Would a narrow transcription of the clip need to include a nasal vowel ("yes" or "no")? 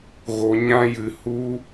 yes